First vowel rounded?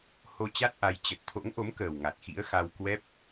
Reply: yes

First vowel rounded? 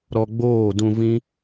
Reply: yes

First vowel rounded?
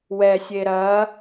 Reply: no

